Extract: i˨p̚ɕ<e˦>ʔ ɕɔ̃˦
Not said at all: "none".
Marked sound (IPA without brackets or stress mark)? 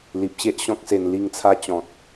e˦